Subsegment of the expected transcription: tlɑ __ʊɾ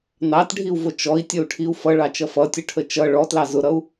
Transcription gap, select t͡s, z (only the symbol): z